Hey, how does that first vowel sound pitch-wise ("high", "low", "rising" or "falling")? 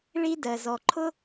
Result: high